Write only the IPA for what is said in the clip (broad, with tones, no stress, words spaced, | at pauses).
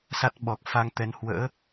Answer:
sa˦˥t̚ɓɔ˨˩k̚ fa˧ŋt̪ɛ˨˦n hwə̰ː˧˥